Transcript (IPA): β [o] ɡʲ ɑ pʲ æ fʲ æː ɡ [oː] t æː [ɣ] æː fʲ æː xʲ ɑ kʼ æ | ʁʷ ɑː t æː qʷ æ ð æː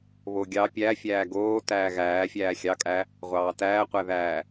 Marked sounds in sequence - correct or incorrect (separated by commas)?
correct, correct, correct